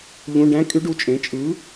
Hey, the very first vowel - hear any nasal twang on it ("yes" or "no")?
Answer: yes